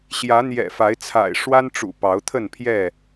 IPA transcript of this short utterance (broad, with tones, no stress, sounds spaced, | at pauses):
ɕ j ä˨˦ n̪ j ɛ̰˨˩ f a˨˦ ɪ̯ t͡sʰ a̰˨˩ ɪ̯ ʂ w a˦ n ʈ͡ʂ ṵ˨˩ p ɑ˨˦ ʊ̯ t̪ʰ ə˥˨ n pʰ j ɛ˥˨